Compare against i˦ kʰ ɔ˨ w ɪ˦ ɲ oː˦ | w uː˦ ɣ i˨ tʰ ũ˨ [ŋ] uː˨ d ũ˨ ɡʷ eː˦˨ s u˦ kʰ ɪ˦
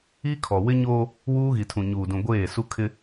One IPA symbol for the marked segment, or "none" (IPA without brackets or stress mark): ɲ